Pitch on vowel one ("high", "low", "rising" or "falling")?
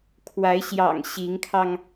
rising